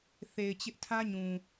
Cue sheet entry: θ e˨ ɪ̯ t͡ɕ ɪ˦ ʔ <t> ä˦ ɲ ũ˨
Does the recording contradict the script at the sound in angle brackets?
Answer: yes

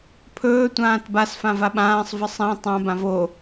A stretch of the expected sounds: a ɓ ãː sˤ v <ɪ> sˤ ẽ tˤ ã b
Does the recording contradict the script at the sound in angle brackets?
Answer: no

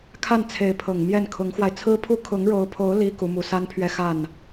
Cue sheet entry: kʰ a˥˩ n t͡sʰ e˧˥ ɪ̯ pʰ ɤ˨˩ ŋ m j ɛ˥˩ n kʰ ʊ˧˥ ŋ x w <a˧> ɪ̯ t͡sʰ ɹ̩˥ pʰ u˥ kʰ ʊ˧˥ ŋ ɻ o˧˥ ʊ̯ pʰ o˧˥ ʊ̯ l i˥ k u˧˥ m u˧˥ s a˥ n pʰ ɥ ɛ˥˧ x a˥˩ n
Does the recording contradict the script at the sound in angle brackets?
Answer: no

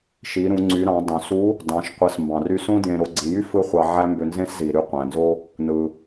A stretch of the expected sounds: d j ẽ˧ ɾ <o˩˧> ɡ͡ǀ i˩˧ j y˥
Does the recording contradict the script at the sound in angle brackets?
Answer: no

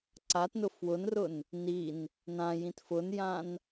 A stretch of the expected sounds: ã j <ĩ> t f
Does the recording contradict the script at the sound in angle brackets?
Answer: no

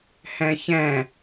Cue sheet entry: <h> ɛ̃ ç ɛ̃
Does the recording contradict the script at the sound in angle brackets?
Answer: no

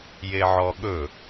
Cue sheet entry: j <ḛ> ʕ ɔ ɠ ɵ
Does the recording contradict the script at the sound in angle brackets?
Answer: yes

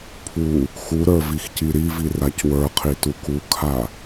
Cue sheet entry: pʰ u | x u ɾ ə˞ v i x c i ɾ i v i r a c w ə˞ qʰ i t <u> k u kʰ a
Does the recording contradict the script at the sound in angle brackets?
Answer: no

